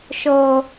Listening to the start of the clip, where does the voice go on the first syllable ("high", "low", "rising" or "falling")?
low